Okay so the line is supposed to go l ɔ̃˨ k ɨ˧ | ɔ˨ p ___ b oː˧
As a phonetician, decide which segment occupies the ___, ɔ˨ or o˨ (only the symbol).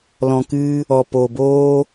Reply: o˨